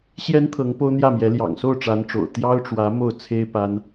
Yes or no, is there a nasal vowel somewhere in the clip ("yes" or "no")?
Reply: no